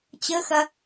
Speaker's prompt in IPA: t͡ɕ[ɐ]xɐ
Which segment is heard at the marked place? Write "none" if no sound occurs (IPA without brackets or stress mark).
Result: ə